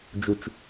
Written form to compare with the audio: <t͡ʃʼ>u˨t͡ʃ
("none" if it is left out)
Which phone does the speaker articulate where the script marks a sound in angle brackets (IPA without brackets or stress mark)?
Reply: d͡ʒ